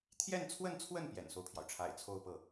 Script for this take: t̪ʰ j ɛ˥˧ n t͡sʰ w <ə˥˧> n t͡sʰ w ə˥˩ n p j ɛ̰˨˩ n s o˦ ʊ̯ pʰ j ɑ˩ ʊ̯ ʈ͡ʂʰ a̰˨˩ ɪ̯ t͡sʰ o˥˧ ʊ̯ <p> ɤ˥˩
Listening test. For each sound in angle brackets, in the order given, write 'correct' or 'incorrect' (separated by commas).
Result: correct, correct